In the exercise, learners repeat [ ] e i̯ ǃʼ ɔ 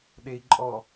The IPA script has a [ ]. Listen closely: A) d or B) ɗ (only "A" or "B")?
B